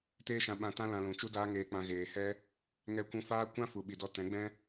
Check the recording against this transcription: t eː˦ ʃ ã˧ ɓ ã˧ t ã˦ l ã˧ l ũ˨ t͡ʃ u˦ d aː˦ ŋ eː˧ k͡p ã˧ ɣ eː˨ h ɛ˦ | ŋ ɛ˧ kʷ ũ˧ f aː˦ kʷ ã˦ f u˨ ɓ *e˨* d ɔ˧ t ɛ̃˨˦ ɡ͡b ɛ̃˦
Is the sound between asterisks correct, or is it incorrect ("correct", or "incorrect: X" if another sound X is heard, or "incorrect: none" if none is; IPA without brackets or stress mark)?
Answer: incorrect: i˨